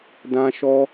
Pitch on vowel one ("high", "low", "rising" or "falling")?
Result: high